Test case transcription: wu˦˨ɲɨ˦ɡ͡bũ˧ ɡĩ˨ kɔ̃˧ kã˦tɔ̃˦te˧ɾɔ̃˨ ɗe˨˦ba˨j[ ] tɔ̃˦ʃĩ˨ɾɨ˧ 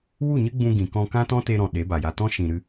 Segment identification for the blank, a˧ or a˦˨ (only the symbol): a˧